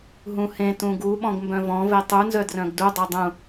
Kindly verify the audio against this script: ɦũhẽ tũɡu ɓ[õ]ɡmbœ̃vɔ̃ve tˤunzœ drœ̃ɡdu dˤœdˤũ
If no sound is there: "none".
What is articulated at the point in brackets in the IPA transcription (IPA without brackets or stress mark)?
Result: ɔ̃